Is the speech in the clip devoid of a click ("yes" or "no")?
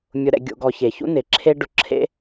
no